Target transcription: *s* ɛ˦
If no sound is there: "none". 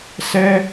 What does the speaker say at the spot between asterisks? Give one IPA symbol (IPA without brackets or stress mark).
s